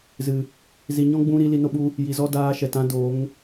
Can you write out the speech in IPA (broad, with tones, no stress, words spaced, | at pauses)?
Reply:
zɨ˨ | zi˨ɲɔ̃˦ɡ͡bũ˧ ɾi˨˦li˧no˦ɓu˦ | ji˨zɔ˦ daː˧ʃɛ˨t ã˦do˨˦ŋ